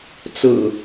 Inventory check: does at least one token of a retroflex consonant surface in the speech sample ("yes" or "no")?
no